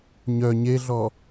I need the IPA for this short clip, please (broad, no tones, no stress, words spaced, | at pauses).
ɲœ ɲeɮɔ